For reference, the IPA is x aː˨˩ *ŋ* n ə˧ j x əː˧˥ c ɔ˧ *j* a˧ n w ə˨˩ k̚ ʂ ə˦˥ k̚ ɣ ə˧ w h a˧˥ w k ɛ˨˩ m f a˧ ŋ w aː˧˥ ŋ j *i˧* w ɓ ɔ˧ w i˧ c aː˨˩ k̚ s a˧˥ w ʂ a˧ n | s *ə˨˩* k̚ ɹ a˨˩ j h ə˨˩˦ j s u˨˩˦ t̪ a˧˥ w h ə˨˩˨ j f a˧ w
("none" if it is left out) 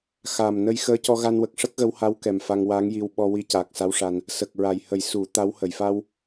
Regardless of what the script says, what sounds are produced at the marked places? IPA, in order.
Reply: m, ɣ, i˧, ə˨˩

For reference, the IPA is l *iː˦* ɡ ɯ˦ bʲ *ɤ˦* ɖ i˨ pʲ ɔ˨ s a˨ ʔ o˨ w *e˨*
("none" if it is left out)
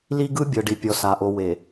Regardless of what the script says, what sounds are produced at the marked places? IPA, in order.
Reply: i˦, ɤ˨, e˨

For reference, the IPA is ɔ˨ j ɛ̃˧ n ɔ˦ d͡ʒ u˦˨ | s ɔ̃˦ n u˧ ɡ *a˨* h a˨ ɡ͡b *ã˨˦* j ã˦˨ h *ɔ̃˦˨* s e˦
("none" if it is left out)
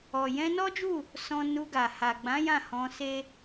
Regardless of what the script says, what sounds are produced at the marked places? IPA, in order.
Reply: a˨, ã˨˦, ɔ̃˧

